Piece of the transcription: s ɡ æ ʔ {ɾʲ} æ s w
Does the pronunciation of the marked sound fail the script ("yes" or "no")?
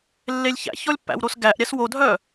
no